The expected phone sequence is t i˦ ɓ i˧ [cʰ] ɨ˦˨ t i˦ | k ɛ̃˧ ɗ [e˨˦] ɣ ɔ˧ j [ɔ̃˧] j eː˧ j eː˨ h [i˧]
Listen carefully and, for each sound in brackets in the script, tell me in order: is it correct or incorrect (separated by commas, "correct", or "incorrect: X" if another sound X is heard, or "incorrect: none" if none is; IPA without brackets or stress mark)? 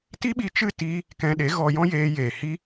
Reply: incorrect: t͡ʃ, correct, incorrect: ɔ̃˦, incorrect: i˦